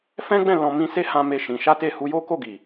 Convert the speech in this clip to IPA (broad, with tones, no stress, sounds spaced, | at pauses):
f ɛ̃˦ ɡ͡b ɛ̃˦˨ l ɔ̃˧ m ĩ˧ s e˦ h ã˦ m e˦˨ ʃ ĩ˧ ʃ a˦ t e˦˨ h u˧ j o˦ k o˦˨ ɡ i˨